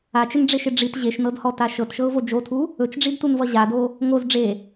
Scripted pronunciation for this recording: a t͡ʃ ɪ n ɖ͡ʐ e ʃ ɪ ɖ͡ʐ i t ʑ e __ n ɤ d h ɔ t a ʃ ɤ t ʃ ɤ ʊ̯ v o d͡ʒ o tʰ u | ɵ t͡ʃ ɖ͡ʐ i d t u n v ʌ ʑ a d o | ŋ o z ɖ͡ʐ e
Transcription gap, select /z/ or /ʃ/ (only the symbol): ʃ